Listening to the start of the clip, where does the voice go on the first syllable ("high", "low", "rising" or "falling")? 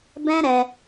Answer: high